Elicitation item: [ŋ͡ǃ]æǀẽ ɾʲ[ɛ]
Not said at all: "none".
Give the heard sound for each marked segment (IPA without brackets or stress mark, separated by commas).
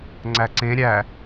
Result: ŋ͡ǀ, æ